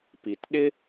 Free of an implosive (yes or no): no